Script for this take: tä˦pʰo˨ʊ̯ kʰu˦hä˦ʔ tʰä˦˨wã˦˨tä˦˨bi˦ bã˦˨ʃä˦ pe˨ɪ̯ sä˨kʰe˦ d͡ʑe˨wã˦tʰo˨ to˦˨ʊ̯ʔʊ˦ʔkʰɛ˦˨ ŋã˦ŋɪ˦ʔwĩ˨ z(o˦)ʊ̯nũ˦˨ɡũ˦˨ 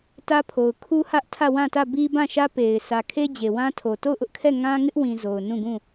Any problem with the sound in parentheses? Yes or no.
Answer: yes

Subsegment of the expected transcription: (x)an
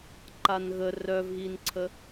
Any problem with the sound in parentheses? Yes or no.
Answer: yes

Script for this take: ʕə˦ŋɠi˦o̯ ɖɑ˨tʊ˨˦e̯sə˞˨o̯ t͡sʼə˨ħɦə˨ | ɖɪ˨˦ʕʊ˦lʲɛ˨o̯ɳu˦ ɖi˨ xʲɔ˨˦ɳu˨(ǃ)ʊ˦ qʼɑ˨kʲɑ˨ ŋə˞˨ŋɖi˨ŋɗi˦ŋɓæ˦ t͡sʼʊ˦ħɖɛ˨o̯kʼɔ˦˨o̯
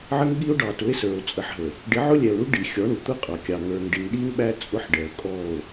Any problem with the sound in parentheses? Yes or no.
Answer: yes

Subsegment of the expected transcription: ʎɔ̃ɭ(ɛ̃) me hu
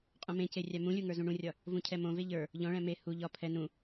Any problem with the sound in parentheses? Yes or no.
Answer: no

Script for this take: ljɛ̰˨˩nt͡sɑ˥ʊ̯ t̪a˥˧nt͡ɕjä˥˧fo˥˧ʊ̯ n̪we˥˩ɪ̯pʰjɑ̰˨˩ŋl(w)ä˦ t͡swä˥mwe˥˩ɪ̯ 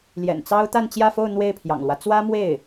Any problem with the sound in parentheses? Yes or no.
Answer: no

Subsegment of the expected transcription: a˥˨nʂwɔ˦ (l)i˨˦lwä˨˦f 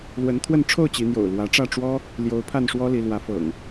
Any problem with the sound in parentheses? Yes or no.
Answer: no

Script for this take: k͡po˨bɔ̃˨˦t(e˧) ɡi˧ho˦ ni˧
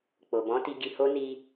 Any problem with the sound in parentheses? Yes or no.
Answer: yes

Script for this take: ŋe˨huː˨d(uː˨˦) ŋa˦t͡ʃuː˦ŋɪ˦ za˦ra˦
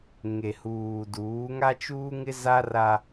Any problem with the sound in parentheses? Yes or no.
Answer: no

